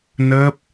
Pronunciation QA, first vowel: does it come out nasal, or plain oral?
oral